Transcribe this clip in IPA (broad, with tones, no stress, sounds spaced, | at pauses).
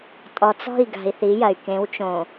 tʼ ɔ˨ t͡s ɔ̤˦˨ i̯ ɡ a̤˨ i̯ θ i˨˦ j ɐ˨ y̯ k ẽ˨˦ w t͡ʃ õ˨